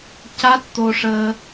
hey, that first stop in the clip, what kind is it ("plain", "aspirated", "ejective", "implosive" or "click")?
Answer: plain